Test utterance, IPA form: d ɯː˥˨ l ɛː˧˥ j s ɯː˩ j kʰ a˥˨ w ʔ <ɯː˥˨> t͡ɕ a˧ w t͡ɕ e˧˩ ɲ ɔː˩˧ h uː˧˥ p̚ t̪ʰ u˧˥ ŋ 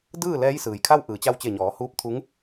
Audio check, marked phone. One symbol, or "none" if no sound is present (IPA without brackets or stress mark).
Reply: ɯː˩˧